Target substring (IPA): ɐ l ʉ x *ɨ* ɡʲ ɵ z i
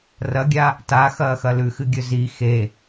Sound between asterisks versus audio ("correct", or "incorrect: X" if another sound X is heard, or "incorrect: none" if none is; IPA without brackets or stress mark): correct